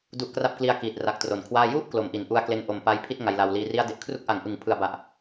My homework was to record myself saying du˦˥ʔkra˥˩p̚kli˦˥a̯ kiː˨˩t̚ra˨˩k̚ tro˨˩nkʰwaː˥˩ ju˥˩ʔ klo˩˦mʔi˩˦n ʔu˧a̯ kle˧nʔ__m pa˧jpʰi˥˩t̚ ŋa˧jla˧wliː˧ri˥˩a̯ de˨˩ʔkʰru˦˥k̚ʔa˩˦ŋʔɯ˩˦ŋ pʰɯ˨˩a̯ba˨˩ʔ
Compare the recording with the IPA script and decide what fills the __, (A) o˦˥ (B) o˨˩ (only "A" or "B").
B